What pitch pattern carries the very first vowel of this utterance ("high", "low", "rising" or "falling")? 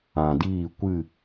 low